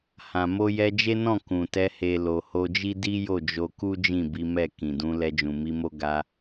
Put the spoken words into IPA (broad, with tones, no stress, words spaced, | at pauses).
hã˨ mo˧jɛ˧d͡ʒe˦nɔ̃˦˨ kũ˨tɛ˧ he˨ lo˨ho˧d͡ʒi˦ di˦jo˦˨d͡ʒo˧ku˦ d͡ʒĩ˦˨bi˨˦mɛ˦˨ kĩ˨dũ˨˦lɛ˧ d͡ʒũ˨mi˨˦mo˦ ɡa˧